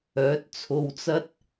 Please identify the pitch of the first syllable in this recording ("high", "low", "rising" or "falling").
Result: rising